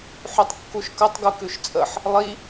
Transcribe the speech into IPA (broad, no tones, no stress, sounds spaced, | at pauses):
ħ ʉ tˤ kː u ʃ k ɐ tˤ ɡ u k ʉ ʃ t͡sʼ ə ħ | lˠ i